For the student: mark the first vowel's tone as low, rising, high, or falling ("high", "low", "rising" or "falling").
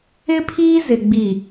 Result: high